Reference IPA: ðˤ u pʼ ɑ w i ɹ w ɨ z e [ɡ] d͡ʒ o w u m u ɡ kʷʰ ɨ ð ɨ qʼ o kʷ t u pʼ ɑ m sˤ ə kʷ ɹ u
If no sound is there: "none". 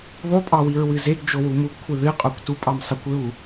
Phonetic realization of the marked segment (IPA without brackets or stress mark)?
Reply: ɡ